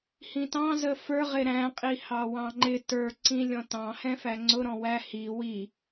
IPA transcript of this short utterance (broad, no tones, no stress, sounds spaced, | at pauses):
h ĩ t ɑ̃ z ə f ə˞ ʁ ɪ ɾ æ̃ qʼ i h ɑ w ɑ̃ ŋ͡ǃ ɪ t ə˞ ǀ ĩ lʲ ɔ̃ t ɑ̃ h ɛ̃ f æ ŋ͡ǀ ʊ ɾ ɔ̃ w æ h i w i